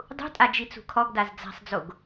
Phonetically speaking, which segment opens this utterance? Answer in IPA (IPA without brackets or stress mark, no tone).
dˤ